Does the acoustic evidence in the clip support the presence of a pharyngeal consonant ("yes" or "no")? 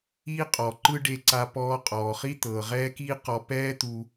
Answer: no